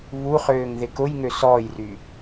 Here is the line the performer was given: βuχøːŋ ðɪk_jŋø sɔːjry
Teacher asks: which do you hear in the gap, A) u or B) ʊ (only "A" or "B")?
B